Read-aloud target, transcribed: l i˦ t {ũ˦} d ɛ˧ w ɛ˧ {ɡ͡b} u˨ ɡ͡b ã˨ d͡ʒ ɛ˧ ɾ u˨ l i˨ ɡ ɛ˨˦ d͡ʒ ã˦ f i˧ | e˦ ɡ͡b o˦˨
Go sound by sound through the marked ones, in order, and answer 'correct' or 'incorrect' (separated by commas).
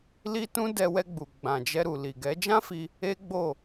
correct, correct